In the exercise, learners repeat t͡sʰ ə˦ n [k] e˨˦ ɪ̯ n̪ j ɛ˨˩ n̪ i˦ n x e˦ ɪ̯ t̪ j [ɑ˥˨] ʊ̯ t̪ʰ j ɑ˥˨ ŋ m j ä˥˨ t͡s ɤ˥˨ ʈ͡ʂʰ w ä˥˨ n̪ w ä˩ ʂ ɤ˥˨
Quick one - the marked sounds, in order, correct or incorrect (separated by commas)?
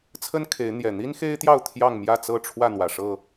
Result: incorrect, correct